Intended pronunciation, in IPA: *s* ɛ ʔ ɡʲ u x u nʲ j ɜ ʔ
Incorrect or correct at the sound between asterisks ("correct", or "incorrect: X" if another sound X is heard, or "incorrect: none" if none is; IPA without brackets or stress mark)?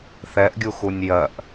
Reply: incorrect: θ